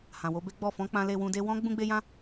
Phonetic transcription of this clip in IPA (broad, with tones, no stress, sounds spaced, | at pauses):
h ã˨ w o˧ b e˦ ɡ͡b ɔ˦˨ f ɔ̃˧ k͡p ã˧ l e˧ w ũ˧ d e˦ w ɔ̃˦ ɡ͡b ũ˦ ɡ͡b e˦ j ã˦